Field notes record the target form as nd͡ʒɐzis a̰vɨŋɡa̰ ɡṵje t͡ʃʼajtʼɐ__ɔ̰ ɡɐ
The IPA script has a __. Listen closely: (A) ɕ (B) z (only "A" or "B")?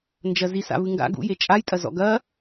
B